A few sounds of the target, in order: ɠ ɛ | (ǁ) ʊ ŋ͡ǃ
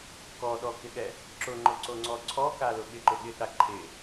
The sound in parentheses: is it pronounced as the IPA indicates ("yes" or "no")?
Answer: yes